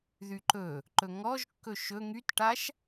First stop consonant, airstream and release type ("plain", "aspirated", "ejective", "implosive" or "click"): click